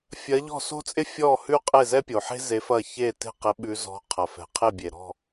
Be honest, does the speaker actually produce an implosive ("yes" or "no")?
yes